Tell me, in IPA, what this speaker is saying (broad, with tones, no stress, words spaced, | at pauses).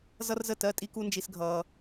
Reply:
zʌ˦rzə˦˨ tɜ˦ tʼi˦ku˦nd͡ʒi˧s ɡʱʌː˧